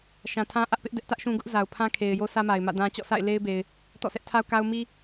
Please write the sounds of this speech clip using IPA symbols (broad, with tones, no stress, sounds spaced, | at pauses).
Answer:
ʃ ã˨ tʰ ã˦ ʔ ä˦ ʔ p ɪ˦ ʔ d ɛ˦ ʔ t ä˦ ʔ ʃ ũ˦ ɡ ʊ˦ ʔ z a˨ ʊ̯ pʰ ã˦ kʰ e˨ ɪ̯ j o˦ s ä˦ m a˨ ɪ̯ m ä̰˦˨ d ã˦ t͡ɕ ɔ̰˦˨ s a̰˦˨ ɪ̯ l e˦ ɪ̯ b e˨ ɪ̯ | t ɔ̰˦˨ sʰ ɛ˦ ʔ tʰ a˦ ʊ̯ k a˦ ʊ̯ m i˦